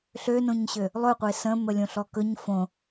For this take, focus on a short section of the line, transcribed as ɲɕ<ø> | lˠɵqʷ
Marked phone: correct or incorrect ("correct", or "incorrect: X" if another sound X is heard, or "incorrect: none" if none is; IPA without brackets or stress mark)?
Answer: correct